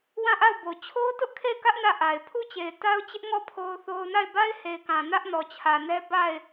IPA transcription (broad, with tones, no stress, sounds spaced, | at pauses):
w ã˦˨ ʔ a˦˨ ʊ̯ b o˨ t͡ɕʰ o˦ ʊ̯ t ʊ˦ ʔ kʰ e˦˨ ɪ̯ k ä˦ ʔ n ä˦˨ ʔ a˨ ɪ̯ pʰ u˦˨ t͡ɕ e˨ ɪ̯ t a˦ ʊ̯ t͡ɕ ɪ˦ ʔ ŋ ɔ˦˨ pʰ o˦ ʊ̯ θ o˦ ʊ̯ n a˦˨ ɪ̯ b a˦ ɪ̯ h e˨ ɪ̯ k ã˨ n ä˦ ʔ n ɔ˨ t͡ɕʰ ä˨ n ɛ˦ b a˦˨ ɪ̯